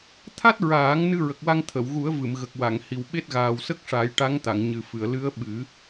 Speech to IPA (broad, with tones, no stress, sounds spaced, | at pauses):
t̪ʰ a˦˥ t̚ ɹ aː˨˩˦ ŋ n ɨ˧ ɹ ə˨˩ k̚ w a˧ ŋ t̪ʰ ə˨˩˨ w ɣ u˨˩˦ ə̯ v ɨ˨˩˨ m ɣ ə˨˩ k̚ w a˨˩˨ ŋ h i˨˩ w ɓ e˦˥ t̚ ɣ aː˨˩ w s ə˦˥ k̚ ʂ a˨˩˦ j ʈ a˧˥ ŋ t̪ a˨˩˨ ŋ ɲ ɨ˨˩ f ɨ˨˩˨ ə̯ l ɨ˧˥ ə̯ ɓ ɨ˨˩˦